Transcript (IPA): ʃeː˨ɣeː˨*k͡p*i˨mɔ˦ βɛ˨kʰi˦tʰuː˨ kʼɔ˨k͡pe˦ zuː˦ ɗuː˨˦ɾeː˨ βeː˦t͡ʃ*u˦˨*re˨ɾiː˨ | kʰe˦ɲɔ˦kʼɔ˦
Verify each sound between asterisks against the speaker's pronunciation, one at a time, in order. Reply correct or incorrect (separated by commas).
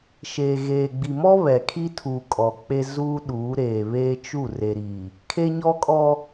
incorrect, correct